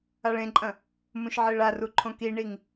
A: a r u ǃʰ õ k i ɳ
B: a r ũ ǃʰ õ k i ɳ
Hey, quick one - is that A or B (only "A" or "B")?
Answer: A